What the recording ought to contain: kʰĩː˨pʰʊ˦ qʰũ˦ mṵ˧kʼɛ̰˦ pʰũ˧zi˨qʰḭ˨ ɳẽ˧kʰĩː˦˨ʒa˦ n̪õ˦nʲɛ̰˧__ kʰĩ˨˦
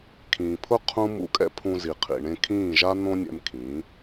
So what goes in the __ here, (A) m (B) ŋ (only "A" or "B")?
A